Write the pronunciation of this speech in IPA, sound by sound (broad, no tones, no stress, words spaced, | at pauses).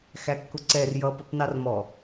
xækːʊǀɛr jʌ pʌpnɑrmɔ